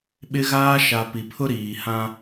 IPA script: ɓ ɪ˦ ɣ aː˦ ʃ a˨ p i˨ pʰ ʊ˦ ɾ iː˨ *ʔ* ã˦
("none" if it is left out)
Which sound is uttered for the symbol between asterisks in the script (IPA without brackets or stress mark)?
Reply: h